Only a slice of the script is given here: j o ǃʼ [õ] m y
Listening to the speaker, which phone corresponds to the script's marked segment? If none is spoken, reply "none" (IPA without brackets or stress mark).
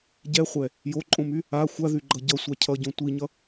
õ